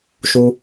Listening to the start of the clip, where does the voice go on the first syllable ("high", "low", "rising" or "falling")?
high